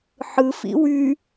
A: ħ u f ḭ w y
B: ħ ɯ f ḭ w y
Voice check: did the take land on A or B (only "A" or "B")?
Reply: B